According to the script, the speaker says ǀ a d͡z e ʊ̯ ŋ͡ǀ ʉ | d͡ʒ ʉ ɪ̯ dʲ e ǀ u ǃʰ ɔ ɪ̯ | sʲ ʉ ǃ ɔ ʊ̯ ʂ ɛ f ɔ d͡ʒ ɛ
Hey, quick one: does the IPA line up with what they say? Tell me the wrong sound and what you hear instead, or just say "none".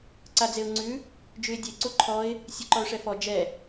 none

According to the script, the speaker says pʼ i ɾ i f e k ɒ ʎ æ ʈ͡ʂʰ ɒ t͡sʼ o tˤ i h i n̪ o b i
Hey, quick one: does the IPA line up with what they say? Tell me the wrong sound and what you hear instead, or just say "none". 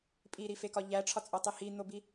none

